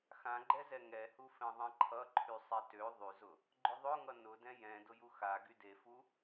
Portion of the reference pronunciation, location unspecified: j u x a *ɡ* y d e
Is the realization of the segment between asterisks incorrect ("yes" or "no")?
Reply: no